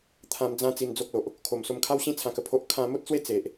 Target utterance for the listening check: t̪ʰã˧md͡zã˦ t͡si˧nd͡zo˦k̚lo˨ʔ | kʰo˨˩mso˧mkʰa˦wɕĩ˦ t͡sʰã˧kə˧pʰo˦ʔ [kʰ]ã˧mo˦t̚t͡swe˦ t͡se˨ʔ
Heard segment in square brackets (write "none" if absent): kʰ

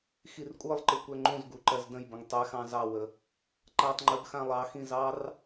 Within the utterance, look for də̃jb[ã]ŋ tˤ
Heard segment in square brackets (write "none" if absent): ə̃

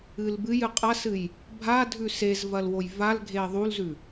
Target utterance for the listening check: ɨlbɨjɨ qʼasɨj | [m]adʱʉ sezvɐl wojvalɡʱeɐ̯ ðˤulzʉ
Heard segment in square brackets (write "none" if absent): bʱ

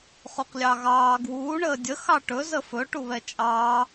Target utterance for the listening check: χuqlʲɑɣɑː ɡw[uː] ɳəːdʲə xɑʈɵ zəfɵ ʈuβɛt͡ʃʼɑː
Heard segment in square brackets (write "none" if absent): uː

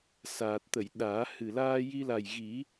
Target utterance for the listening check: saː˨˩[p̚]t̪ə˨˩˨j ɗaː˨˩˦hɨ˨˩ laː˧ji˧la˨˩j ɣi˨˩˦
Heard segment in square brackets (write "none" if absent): t̚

